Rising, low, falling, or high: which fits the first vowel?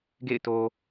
falling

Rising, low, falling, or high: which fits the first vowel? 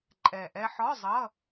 low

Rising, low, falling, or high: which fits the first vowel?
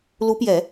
rising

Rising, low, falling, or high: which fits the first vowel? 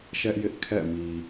high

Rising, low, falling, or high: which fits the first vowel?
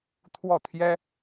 falling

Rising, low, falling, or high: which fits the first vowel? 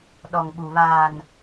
low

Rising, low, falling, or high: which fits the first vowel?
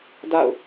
falling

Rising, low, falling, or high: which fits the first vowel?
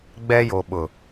high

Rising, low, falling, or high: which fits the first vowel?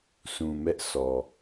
low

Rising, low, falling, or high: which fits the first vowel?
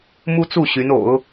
high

